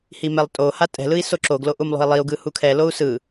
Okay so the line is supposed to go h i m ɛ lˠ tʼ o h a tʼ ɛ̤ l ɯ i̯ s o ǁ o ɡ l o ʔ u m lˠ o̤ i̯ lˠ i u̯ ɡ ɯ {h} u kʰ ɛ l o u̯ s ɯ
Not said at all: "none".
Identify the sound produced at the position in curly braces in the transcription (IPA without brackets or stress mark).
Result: h